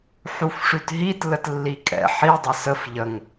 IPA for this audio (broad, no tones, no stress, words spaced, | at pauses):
ħufʂʉtɦit lətlːikʼɛ̰ ħi dˤəsəf ʎəŋ